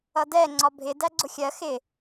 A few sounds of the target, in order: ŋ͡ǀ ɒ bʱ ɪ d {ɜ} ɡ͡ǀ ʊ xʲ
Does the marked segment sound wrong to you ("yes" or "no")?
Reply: yes